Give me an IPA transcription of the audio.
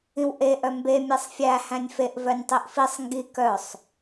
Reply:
ĩ w ʔ e ʔ œ m b e mʲ e sˤ fʲ æ h æ̃ nʲ f e ʔ v œ nʲ tˤ i ʔ f i sˤ ŋ ɡ i k œ sˤ

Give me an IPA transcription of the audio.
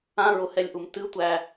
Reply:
ã ɹ ʊ h ɛ lʲ ʔ u m t ɨ tʷ æ

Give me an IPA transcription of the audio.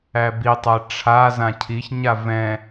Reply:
æ b i tˤ æ ʈ͡ʂʰ a z ã cʰ i ç ɲ a v ɛ̃

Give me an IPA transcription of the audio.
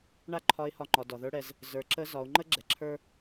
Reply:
ɳ a˥ ǃʰ ɒ˧˥ ɪ̯ h ɒ˧˥ ŋ͡ǃ ɒ˩˧ d ɒ˩ ð ə˞˧˥ ɽ ɛ˩˧ z | z ə˞˩˧ ǁ ə˧˥ z ɒ˩˧ ʊ̯ ŋ͡ǃ ə˥ ɡ͡ǁ ɛ˩ ǁʰ ə˞˥

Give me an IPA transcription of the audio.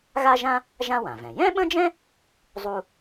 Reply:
ɣ a˥ ʒ ã˥ | ʒ ã˥ w ã˩ v ɛ̃˩ j ɛ̃˥ ɓ ə̃˥ d͡ʒ ɛ̃˥ | zˤ u˥

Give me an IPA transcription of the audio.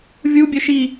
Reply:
vʲ u bʲ œ ʃ i

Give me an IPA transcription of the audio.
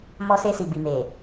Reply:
m ɔ˧ s e˧ s i˨ b i˨ m e˨

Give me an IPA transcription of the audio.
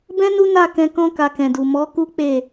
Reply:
b ɛ̃˦ n u˦ n a˦˨ k ɛ̃˧ k ɔ̃˦ k a˧ k ɛ̃˨ d u˨ m ɔ˨˦ k u˦ k͡p e˦˨

